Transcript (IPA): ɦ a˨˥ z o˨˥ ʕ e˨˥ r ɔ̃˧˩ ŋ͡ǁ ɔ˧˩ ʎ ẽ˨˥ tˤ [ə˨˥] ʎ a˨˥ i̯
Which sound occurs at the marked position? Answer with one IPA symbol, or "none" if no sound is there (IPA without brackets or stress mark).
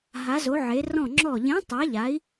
a˨˥